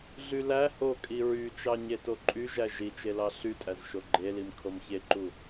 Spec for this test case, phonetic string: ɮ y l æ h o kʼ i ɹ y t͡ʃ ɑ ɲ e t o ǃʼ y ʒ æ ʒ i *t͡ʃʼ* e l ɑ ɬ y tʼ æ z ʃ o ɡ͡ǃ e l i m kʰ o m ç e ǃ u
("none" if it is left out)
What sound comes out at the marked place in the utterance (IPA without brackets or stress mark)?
t͡ʃ